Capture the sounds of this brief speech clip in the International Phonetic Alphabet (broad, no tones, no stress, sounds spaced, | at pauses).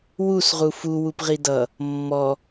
w u s ʁ u f u w u p ʁ i d ʌ | mː ɔ